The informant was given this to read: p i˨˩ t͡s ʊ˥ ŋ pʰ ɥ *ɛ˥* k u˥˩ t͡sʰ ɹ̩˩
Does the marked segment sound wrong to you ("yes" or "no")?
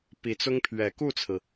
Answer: yes